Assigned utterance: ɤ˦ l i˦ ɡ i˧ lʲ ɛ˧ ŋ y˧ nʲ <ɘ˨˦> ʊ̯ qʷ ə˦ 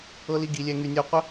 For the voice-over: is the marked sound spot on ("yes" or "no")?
no